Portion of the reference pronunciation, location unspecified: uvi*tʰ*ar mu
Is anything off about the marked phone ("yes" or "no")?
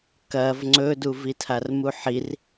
no